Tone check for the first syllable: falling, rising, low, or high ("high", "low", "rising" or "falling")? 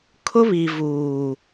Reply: high